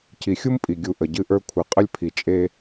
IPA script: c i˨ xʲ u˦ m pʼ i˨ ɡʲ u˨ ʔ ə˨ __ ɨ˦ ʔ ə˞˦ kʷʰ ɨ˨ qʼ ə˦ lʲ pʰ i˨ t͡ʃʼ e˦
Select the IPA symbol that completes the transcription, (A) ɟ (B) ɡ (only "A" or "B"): A